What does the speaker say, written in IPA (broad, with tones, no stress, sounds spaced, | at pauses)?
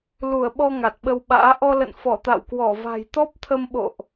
l u˧˩ ə̯ ɓ ɔ˧ ŋ a˨˩ t̚ ɓ ə˧ w ɓ a̰ː˧˥ ʔ ɔ˧ l ə̰˧˨ n f ɔ˧˩ t̪ a̰˧˨ w k w ɔ˧˩ v a̤˨˩ j t̪ ɔ˦˥ p̚ t̪ʰ ə˧ m ɓ o̰˧˨ ʔ